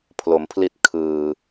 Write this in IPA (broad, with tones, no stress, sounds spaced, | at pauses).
pʰ l o˩˦ m pʰ l i˦˥ t̚ kʰ ɯː˨˩